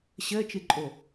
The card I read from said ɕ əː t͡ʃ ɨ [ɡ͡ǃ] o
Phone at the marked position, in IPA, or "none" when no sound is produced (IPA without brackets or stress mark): ǃʼ